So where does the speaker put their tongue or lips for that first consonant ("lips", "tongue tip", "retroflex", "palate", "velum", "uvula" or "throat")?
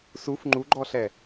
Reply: tongue tip